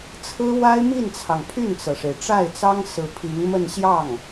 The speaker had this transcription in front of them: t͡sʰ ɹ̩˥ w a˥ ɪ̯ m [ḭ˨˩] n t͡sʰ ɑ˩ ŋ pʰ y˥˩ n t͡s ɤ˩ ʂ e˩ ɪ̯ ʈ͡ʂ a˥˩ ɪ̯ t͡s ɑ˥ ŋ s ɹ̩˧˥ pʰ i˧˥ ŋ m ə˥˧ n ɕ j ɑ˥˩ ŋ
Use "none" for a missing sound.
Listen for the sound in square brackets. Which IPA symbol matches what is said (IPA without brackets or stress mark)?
i˥˩